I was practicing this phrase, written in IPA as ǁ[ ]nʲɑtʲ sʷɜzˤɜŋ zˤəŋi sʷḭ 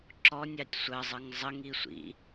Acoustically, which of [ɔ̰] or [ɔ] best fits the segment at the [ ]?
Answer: ɔ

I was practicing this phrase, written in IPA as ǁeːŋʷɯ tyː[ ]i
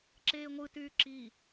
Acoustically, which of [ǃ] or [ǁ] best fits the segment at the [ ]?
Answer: ǁ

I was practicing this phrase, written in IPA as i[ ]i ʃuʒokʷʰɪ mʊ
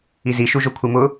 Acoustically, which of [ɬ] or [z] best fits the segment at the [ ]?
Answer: z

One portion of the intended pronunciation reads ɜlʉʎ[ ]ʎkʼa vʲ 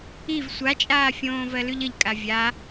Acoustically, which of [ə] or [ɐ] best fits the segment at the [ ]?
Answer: ə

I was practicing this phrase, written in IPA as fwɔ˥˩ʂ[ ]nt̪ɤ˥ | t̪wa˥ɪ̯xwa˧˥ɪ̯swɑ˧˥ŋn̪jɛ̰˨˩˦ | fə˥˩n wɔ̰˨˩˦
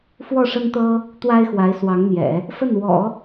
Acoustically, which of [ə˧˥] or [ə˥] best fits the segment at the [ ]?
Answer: ə˥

